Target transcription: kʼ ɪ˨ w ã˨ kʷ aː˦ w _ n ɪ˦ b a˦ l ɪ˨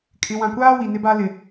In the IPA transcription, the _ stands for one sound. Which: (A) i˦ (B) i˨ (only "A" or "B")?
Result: B